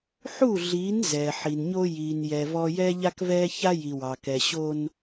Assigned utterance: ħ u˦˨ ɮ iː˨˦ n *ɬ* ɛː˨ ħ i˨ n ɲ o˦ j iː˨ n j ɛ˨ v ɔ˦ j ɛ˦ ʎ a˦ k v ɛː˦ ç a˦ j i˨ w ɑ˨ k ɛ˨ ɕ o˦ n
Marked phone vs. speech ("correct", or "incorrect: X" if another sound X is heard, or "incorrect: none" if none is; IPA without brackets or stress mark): incorrect: z